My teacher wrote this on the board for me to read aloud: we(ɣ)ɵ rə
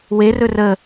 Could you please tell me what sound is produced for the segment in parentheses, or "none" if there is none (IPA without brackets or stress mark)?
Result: r